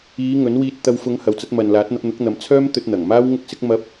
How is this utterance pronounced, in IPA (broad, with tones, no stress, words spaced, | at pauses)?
iː˨˧ ŋɵ˨˥n wiː˧t̚t̪ɐ˧w fʊ˨˧ŋ hɐ˨wt͡sɐ˨˥t̚mɐ˨nlaː˨˥t̚ n̪ɐ˧p̚n̪ʊ˨˥k̚n̪ɐ˨˥m t͡sʰœː˥mt̪ɵ˧t̚n̪ɐ˨˩ŋ maː˥wŋʊ˥k̚sɪ˥k̚ mɐ˥p̚